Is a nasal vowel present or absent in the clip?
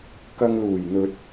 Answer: absent